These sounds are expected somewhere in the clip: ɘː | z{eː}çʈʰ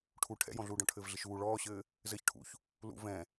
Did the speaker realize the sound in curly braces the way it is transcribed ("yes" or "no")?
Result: no